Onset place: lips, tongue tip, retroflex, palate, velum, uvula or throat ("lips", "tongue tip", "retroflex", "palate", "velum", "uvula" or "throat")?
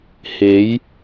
throat